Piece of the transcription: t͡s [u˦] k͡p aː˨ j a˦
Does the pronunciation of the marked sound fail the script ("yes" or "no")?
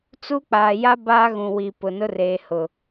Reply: no